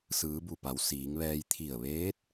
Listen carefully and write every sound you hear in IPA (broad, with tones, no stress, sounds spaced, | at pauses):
s ɯː˩˧ b u˧˩ p a˩˧ w s iː˩˧ ŋ ʋ ɛː˧ j t̪ʰ i˧˩ ə̯ ʋ eː˧˥ t̚